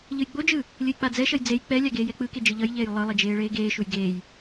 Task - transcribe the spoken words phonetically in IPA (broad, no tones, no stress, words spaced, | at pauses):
ʎɯjɡ͡bod͡ʒɯː | lʲɯjk͡pad͡zɛʃʌj d͡zej k͡pɛlʲa ɡeːjɛk͡pɯke d͡ʒɯʎʌjʎeːj lˠɯlˠi d͡ʒeːɭeːɡeːʃuj ɡeːj